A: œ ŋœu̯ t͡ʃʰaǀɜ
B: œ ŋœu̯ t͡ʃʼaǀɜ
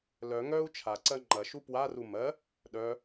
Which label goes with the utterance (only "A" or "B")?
A